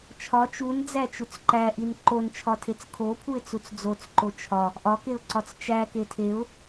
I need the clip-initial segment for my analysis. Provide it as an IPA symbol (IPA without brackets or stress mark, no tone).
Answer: t͡ʃʰ